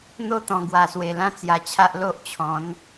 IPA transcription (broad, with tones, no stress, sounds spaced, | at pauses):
n̪ o˥˧ t̪ ɔ̃˨˩ ɡ w a˨˩ s w e˨˩ l ã˥˧ t͡s j a˨˩ t͡ɕʰ a˦ ʔ l o˦ ʔ t͡ɕʰ ɔ̃˨˦ n